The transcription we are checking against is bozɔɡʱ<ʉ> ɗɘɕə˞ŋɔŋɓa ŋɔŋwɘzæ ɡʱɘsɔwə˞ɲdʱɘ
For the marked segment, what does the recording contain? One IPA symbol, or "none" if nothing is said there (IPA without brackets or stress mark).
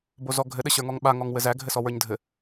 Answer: ɘ